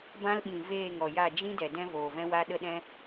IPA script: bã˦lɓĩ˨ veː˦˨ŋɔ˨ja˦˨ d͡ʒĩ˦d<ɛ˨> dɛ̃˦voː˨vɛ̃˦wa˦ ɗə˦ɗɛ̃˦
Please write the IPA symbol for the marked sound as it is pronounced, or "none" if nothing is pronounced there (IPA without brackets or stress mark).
ɛ˨